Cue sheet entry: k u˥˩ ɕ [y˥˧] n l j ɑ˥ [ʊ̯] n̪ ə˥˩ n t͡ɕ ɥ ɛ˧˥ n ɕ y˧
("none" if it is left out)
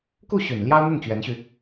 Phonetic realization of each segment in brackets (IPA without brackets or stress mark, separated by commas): y˨˩, ʊ̯